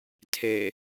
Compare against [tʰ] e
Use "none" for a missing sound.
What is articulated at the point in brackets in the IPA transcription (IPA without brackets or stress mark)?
tʰ